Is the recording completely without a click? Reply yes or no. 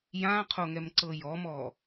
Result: no